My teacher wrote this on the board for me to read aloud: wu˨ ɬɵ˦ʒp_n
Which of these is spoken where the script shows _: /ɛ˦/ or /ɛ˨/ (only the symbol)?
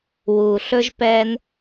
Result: ɛ˦